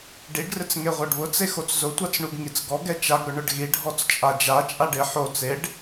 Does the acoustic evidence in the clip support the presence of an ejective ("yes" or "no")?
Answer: yes